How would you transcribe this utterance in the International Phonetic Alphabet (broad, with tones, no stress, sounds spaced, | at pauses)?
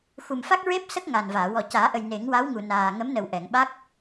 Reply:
x u˨˩ m f a˦˥ k̚ ɹ e˦˥ p̚ s ə˦˥ k̚ ŋ a˨˩ n v aː˨˩˨ w ɔ˨˩ c aː˨˩˦ ʔ ə˨˩ j n e˨˩˦ ŋ w a˧˥ w ŋ u˨˩ n aː˨˩ ŋ ə˧˥ m n ə˨˩ w ʔ ɛ˨˩˨ ŋ ɓ a˦˥ k̚